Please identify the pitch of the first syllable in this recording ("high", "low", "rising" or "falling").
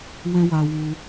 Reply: high